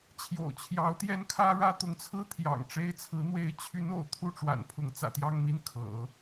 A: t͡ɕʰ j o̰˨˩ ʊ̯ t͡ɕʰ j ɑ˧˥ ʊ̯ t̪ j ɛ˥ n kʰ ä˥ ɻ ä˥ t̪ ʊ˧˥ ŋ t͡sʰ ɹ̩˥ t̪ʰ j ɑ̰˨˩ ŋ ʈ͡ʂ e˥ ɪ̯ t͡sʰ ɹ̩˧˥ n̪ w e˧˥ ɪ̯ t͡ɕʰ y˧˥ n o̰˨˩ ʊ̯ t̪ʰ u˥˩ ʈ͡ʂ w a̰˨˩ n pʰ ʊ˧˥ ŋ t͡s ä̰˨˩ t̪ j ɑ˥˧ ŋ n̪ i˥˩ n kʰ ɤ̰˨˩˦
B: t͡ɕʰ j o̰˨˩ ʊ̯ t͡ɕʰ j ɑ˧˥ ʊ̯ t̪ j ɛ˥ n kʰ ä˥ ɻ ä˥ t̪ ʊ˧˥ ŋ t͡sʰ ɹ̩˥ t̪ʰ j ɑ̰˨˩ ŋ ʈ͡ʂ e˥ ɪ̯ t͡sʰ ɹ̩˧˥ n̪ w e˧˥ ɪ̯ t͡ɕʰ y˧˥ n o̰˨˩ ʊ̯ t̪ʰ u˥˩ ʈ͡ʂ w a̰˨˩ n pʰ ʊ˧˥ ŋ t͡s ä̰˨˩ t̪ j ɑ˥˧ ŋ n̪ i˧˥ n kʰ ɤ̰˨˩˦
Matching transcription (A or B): A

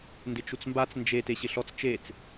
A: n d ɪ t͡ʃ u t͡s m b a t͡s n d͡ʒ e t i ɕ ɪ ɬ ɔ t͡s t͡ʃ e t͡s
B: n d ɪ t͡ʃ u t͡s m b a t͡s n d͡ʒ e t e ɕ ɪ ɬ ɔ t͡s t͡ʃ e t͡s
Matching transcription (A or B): B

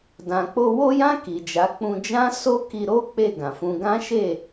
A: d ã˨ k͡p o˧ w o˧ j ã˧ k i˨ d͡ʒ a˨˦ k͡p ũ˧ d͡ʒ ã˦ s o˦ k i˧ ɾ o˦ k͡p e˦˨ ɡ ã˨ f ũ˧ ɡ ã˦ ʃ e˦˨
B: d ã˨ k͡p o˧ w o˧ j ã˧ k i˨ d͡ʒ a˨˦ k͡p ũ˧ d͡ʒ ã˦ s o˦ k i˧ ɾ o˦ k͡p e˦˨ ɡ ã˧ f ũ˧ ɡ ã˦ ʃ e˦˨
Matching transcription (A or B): A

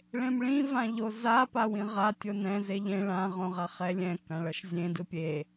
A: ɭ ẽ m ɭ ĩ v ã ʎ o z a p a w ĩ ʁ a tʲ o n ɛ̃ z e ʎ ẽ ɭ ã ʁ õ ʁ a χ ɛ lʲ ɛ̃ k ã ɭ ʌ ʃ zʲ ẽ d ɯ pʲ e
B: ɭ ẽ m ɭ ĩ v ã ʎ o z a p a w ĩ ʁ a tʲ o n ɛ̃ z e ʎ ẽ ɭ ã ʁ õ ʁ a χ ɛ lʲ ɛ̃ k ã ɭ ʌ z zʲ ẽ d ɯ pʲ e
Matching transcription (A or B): A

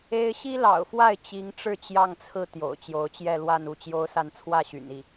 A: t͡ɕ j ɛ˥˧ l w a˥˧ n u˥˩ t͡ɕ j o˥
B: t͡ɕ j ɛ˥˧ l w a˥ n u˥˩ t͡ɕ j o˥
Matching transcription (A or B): A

